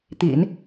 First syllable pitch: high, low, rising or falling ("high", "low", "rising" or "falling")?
low